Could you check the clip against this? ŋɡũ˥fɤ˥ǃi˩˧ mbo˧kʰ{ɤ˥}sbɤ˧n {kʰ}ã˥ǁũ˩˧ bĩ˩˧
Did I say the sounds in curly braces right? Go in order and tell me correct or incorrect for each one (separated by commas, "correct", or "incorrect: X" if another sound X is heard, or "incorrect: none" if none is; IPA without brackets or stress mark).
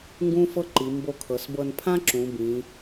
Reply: incorrect: ɤ˩˧, incorrect: pʰ